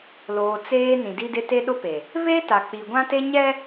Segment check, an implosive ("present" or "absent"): present